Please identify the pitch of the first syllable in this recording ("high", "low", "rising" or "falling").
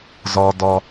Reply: low